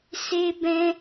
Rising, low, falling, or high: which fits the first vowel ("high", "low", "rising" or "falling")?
high